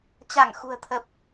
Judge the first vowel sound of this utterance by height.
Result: low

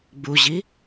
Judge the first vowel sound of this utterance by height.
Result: high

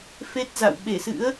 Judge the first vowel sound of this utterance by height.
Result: mid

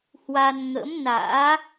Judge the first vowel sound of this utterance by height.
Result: low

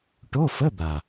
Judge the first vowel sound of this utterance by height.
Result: mid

